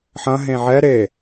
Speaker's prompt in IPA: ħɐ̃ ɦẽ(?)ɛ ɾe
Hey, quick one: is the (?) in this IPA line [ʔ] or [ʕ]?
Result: ʕ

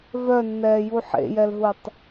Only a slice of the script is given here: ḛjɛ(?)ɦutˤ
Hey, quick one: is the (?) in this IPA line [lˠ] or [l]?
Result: l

